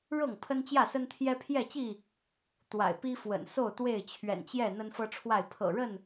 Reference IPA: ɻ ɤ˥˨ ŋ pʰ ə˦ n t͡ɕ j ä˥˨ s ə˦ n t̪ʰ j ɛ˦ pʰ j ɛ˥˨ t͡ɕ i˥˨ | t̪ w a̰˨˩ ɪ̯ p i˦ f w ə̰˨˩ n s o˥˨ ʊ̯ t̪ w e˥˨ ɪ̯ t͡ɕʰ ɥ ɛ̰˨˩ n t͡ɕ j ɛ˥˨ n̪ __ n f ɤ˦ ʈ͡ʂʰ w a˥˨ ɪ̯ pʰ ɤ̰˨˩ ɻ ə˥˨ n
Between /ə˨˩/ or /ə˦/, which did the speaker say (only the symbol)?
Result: ə˦